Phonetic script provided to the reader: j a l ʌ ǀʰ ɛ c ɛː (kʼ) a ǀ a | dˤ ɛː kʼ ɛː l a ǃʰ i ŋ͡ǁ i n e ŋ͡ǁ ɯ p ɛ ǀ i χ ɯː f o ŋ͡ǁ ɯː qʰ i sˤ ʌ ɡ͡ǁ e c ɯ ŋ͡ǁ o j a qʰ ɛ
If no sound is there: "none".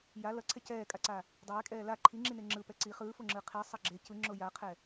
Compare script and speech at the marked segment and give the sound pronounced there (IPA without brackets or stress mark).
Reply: kʼ